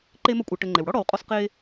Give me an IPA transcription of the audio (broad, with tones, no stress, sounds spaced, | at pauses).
ǃ e˦ m ɐ˦ kʷʼ a˨ ʈ ɘ˨ ŋ͡ǃ e˩ w ɽ ɔ˥ ɽ ɔ˨ w qʼ ɔ˦ s q e˦